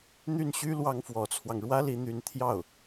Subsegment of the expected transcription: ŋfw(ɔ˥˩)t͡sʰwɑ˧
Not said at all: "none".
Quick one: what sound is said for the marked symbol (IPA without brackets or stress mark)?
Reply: ɔ˧˥